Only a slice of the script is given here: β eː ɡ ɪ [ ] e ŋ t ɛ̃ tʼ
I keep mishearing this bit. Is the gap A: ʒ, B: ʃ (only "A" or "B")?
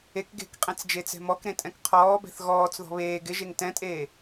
A